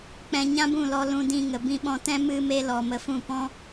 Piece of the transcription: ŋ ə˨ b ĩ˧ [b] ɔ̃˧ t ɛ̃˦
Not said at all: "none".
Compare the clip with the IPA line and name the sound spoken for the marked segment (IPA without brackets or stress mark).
ɓ